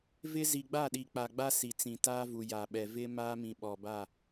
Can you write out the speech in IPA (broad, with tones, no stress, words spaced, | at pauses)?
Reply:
vɪ˦ zi˨ɡ͡ba˦˨ɗi˨ k͡pa˨ɡ͡ba˦ si˨t͡sĩ˨taː˦vu˨ ja˨ɓɛ˨ vɪ˦ maː˦mĩ˨ ɓɔ˨ba˦˨